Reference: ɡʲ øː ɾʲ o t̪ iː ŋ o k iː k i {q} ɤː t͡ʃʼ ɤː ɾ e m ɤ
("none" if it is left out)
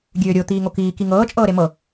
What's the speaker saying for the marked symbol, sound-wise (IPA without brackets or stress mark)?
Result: ŋ